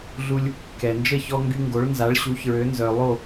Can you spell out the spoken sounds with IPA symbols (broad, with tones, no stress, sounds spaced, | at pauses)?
ɮ u˧ lʲ | k ɛ˩ n d͡ʒ ə˥˩ ç ɔ˧ ŋ ɡ y˧ ŋ ɡ o˩˥ ɭ n z a˩˥ ɭ ɕ u˩˥ ç ɹ ø˩˥ n z œ˩ lˠ o˥˩